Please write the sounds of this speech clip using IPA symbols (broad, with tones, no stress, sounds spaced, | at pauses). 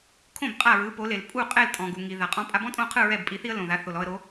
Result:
kʰ õ˥˩ b qʼ a˥˩ ɹ ɯ˩˥ p o˩˥ l e˩ l pʼ u˥˩ qʼ ɛ˥˩ l tʼ ɔ̃˩ ɡ u˩ ŋ i˩ ð a˩ qʼ ɔ̃˧ pʼ a˧ b ɔ̃˥ tʼ õ˥˩ qʰ ɯ˥˩ ɹ ɛ˥˩ b pʼ i˩˥ θ i˥ ə̯ l õ˩ ð a˩˥ θ o˩ l ɔ˧ ə̯ ɾ o˩˥